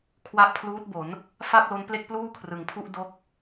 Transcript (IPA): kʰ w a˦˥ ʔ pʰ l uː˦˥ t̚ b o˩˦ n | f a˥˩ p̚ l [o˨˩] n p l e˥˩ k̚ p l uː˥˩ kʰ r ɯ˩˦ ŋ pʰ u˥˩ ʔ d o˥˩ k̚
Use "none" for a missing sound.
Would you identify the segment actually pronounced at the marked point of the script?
o˦˥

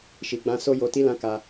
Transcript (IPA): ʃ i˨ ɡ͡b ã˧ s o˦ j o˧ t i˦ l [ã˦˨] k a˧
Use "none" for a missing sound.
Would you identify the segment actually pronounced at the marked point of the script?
ã˦˨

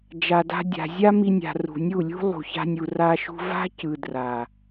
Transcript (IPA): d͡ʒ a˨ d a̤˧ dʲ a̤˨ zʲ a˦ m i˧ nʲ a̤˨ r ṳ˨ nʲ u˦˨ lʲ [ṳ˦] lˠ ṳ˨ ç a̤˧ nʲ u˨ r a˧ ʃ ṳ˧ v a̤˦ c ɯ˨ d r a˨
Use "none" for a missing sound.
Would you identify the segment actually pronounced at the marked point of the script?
ṳ˦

